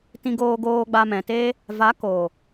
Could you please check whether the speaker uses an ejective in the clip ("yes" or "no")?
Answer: no